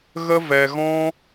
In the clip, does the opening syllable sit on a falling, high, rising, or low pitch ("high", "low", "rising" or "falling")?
high